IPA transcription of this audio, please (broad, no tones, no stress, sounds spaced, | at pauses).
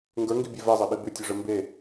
ŋ ɡ ə˞ ŋ ɡ i bʲ ɛ v ɛ zˤ ɛ ɓ i b ʉ tʲ ɔ ʐ ɘ m b e